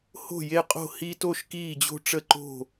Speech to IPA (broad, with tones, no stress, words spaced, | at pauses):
ho̤˥˨je˥˨qʼo̤˥˨ hi˦to˥˨ʃ kiː˥˨d͡ʑo̤˥˨ʈ͡ʂə˥˨ǃo̤˥˨